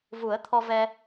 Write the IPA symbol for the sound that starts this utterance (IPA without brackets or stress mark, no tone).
v